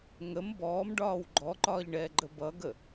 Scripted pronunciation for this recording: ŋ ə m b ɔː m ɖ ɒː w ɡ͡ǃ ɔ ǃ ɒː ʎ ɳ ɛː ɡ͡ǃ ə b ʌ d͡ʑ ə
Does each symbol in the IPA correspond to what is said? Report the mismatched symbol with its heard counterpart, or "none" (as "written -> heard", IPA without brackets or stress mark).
d͡ʑ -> ɡ